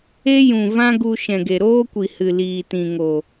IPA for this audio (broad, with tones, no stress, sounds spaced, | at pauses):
e˦ j ũ˨ v ã˦ ɡ u˧ ʃ ɛ̃˨ ɡ e˨ ɾ oː˦ kʷ i˨ h ɨ˨ l iː˨ t ĩ˨ ŋ o˨